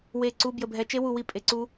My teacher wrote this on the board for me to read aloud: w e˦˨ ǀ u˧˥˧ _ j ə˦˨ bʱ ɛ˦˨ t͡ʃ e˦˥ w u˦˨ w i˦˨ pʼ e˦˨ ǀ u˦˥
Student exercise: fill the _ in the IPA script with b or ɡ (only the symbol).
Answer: b